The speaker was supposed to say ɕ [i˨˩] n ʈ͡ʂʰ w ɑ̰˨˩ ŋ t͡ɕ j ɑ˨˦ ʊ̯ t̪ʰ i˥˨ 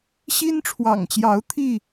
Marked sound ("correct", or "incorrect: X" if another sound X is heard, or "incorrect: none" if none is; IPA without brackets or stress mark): incorrect: i˦